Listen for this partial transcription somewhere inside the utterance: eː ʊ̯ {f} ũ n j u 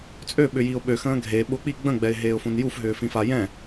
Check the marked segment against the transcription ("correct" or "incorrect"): correct